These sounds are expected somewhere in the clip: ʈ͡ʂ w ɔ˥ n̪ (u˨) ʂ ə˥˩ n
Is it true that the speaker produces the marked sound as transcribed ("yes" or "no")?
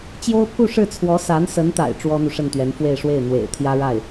yes